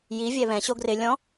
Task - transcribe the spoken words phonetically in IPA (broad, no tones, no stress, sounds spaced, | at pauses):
j i vʲ ɛ β ɛ̃ ɕ o ɡ r ɪ lʲ ɔ̃